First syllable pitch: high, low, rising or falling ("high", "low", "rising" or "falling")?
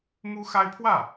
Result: high